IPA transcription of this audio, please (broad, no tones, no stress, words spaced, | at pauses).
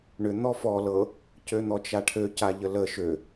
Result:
ɳʏ n̪ɔfɔ lɤ | cøn̪ɔt͡ʃaʈʰø caʎələ ʃø